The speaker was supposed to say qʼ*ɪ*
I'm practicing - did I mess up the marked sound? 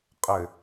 no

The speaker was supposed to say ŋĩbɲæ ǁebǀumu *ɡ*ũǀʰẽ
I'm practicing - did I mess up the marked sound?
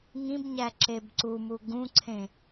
no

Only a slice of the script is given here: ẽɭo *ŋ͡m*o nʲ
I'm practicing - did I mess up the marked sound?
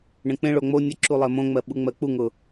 no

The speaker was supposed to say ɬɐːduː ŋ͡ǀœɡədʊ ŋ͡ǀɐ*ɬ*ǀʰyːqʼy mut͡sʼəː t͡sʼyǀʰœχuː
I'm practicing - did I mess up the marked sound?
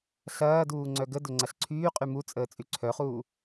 no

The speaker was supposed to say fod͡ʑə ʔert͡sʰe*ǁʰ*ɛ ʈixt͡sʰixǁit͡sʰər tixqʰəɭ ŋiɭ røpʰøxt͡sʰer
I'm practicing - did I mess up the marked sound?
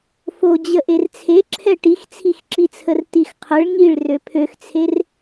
no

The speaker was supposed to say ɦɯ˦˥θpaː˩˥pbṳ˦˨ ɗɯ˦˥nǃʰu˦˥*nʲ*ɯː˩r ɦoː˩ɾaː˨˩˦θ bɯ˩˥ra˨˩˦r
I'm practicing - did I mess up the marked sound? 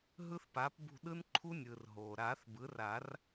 no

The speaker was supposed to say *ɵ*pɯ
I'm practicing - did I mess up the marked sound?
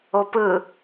yes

